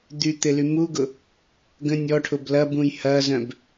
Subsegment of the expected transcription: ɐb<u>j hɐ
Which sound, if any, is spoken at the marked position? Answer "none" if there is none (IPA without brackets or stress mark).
ũ